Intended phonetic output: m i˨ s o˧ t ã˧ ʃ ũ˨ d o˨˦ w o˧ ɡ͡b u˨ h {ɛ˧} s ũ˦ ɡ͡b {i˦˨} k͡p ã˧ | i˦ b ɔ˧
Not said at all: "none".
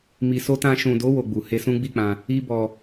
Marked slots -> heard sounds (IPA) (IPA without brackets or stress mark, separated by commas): e˧, i˦˨